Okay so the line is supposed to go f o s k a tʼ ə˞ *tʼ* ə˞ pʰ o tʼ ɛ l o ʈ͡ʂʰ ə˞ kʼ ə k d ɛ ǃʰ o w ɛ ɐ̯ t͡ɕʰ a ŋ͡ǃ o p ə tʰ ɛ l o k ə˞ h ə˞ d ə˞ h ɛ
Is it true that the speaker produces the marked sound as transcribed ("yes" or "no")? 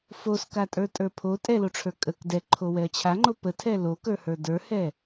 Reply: yes